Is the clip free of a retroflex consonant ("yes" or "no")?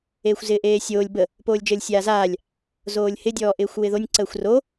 yes